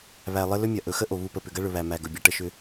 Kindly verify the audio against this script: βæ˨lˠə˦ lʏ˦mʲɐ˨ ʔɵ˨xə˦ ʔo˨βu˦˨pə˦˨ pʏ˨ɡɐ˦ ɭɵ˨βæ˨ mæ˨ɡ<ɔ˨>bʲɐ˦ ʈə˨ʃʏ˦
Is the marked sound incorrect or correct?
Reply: incorrect